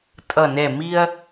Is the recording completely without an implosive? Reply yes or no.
yes